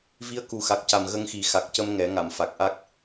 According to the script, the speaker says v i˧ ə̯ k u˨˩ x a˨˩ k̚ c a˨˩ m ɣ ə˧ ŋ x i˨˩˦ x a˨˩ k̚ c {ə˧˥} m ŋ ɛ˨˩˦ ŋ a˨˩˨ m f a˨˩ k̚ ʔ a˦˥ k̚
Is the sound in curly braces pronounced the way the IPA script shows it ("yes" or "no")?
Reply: no